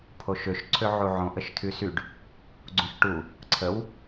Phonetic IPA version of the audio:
pʰ o ʃ ø ʃ ǀʰ ø ʕ u ʕ õ ʔ ə ʃ tʰ y s y ɖ | ɡ͡ǀ ũ ʃ ʈ u | ǀʰ ə w

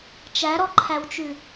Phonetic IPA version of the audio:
t͡ʃ æ ɾ ɔ ǃʰ æ w t͡ʃ ʉ

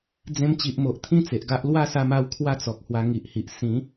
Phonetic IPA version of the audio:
d͡z ẽ˧ m t͡ɕ i˨ ʔ m o˨ ʔ t̪ʰ ĩ˥˧ t͡s e˨ ʔ ɡ a˦ ʔ l w a˥˧ s a˧ m a˧ w kʰ w a˥˧ t͡s ɔ˨ k̚ h w a˧ ŋ i˨ ʔ h i˨ ʔ s ĩ˨˦

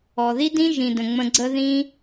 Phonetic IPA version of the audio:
ɔ˨ ð i˦ d ĩ˦ ʒ ĩ˨ d ə̃˨ ŋ͡m ə̃˧ ɡ͡ǀ ə˦ ð ĩ˦

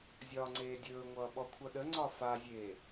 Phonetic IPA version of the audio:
zʲ ɒː ŋ͡ǀ eː dʲ ɵː ŋʷ ʌː ɓ ɔ kʷʰ ʌ ɗ ə ŋ͡ǀ ɒ f a zʲ eː

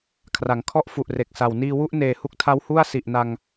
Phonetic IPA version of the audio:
kʰ r a˩˦ ŋ kʰ ɔ˥˩ ʔ f u˨˩ ʔ r e˨˩ k̚ s a˨˩ w n iː˧ w u˦˥ ʔ n eː˨˩ h u˦˥ k̚ tʰ a˦˥ w h u˥˩ a̯ s i˨˩ ʔ n a˧ ŋ

